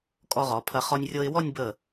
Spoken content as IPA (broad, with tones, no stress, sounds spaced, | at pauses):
kʼ ɔ˧ ʁ ɔ˩˧ pʰ ɐ˧ χ ɔ˧ nʲ rʲ ɤ˧ ɪ̯ w ɔ˥˧ nʲ b ə˧˩